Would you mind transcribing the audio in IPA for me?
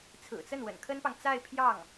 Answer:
t͡sʰ ɹ̩˨˩ t͡s ə˥˩ n w ə̰˨˩ n kʰ ə˥ n p ɑ˨ ŋ t͡s a˥˧ ɪ̯ pʰ j ɑ˥˩ ŋ

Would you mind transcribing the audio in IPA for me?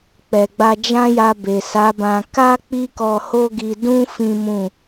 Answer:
k͡p ɛ˨ ɡ͡b a˧ d͡ʒ ã˦ j a˧ b e˨ s a˨˦ b ã˧ k a˦ k͡p i˦ k ɔ˧ h o˦ ɡ i˧ d ũ˦ f ĩ˦ m ũ˦˨

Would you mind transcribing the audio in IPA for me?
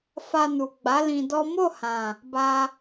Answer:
f a˧ n u˨ ɡ͡b a˨˦ l ĩ˧ d ɔ˦ m o˦˨ h ã˨ | b a˧

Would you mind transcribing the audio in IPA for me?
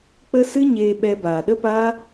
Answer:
k͡p ə˦ s ɨ˦ ɲ eː˧ ɓ ɛ˧ b aː˨ ɗ ə˦ p aː˦

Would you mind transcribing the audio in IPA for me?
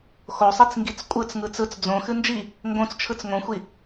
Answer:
x o sˤ i t͡s ŋ ɡ i t͡s kʷʼ ɯ t͡s ŋ ɯ t͡s ɯ t͡s d͡z õ x ɨ n d͡ʒ i | ŋ ɡ õ t͡s t͡ʃʰ ɯ t͡s ŋ õ xʷ i

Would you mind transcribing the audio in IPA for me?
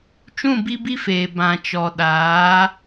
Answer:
t͡ʃ ũ˦˨ b i˦ b i˦ f eː˨ b ã˨ t͡ʃ ɔ˨ ɗ aː˨˦

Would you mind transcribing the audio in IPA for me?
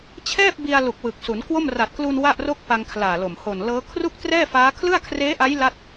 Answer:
t͡ɕʰ ɛː˥˩ p̚ b i˧ a̯ l u˨˩ k̚ w ɯ˨˩ k̚ s u˩˦ n k w o˥˩ m r a˨˩ t̚ k l u˧ n w a˥˩ ʔ r o˥˩ k̚ p a˧ ŋ kʰ l aː˨˩ l o˨˩ m h o˨˩ n l ɤː˦˥ kʰ r u˥˩ k̚ t r ɛː˥˩ f aː˦˥ kʰ l ɯ˥˩ a̯ kʰ r eː˦˥ ʔ a˦˥ j l a˥˩ t̚

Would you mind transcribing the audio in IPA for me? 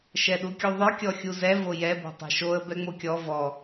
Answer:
ʃ ɛ ɗ u kʲ u ðˤ œ kʲ ɔ xʲ u z ɛ v o j ɛ b o̤ tˤ ɛ̤ ʃ o ə̯ b ɛ ŋ͡m o kʲ ɔ v ɔ

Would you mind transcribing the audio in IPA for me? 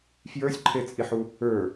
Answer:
f j ə˞ sʲ ǃʰ e t͡sʼ i ħ u | ə˞

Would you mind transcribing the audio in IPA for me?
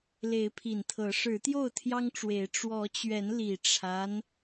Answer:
l e˨˦ ɪ̯ pʰ i˨˩ n t̪ʰ ɤ˨˦ ʂ ɻ̩˨˦ t̪ j o˥˨ ʊ̯ t̪ʰ j ɑ˦ ŋ ʈ͡ʂ w e˨˦ ɪ̯ ʈ͡ʂ w ɔ˨˦ t͡ɕ ɥ ɛ˨˦ n l i˨˩ ʈ͡ʂʰ a˦ n

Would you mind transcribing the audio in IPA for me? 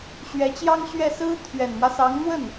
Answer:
ɕ ɥ ɛ˧˥ t͡ɕ j ɑ˥ ŋ ɕ ɥ ɛ˥˩ s ɹ̩˥ t̪ʰ ɥ ɛ˨˩ n m w ä˦ s ɑ˧˥ ŋ n̪ w ə˥˩ n

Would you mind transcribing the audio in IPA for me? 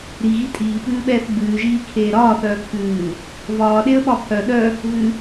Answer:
ɾ i ɣ i tʼ iː p ʉː ɓ ɛː θ ɡ͡b ʉː ʒ iː kʰ eː ɾ ɒː θ œː pʰ ʉː | v ɒː ɗ e ə̯ ɓ ɒ pʰ œ ɗ œ | v ʉ

